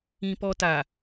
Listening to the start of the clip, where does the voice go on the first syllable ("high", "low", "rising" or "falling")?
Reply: high